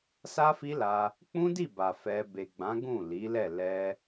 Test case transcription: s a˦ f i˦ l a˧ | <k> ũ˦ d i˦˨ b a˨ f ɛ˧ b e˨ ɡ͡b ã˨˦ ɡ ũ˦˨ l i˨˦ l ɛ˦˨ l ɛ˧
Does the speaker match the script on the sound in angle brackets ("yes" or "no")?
no